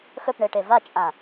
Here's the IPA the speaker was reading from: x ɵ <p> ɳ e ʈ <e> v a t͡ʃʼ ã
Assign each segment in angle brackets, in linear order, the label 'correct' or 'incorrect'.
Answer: correct, correct

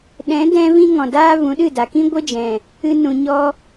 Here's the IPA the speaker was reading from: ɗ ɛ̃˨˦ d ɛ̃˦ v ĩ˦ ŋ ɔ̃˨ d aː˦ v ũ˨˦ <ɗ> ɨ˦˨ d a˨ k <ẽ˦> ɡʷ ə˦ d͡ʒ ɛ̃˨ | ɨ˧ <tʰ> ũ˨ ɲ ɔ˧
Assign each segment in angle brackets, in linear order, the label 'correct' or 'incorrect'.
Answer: correct, incorrect: ĩ˦, incorrect: n

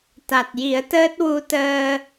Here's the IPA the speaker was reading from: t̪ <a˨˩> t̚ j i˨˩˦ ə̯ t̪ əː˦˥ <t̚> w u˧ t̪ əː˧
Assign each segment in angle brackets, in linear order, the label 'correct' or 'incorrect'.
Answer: correct, correct

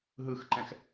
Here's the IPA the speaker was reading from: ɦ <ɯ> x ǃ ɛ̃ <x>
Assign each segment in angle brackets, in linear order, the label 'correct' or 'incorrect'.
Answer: correct, correct

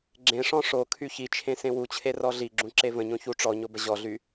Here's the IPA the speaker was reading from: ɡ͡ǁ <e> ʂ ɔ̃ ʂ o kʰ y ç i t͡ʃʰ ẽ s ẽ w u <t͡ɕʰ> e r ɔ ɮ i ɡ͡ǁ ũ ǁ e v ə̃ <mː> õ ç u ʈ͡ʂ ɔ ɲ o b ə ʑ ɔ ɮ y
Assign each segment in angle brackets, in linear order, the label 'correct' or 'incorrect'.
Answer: incorrect: ẽ, correct, incorrect: ɲ

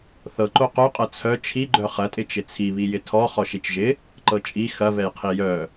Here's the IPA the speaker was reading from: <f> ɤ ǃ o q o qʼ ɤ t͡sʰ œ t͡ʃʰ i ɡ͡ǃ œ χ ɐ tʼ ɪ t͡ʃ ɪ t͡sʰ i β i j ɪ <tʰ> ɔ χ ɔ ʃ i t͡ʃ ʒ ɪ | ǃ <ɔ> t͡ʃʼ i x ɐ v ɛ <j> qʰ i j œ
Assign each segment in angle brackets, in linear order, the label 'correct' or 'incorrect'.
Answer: incorrect: θ, correct, incorrect: ɤ, correct

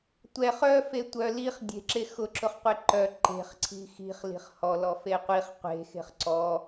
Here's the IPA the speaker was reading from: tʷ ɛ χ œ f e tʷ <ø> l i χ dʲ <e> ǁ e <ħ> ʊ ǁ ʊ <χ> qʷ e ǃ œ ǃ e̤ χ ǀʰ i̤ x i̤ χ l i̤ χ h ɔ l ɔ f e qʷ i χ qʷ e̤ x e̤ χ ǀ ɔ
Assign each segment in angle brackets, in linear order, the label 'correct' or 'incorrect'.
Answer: incorrect: œ, incorrect: e̤, incorrect: x, correct

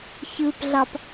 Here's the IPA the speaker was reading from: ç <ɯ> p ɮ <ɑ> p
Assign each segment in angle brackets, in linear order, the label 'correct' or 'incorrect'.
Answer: correct, correct

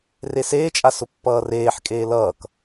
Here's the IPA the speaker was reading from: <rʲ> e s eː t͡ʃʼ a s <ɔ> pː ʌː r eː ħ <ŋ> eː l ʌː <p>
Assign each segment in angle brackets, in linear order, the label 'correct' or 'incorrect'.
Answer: incorrect: r, incorrect: ʊ, incorrect: kʼ, incorrect: k

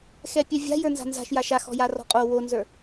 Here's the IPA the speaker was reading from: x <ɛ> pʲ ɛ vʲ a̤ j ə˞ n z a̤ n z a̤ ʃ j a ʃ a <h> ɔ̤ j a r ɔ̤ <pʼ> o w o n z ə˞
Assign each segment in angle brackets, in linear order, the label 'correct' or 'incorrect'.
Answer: correct, incorrect: x, incorrect: qʼ

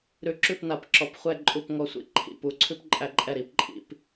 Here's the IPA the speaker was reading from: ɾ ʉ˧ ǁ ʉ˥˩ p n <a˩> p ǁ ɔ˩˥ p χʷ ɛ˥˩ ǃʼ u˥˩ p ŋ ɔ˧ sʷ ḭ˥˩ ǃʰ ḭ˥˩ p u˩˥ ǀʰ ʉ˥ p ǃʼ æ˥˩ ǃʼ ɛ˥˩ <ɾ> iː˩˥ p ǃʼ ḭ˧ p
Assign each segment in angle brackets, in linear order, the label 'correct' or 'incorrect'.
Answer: incorrect: a˩˥, correct

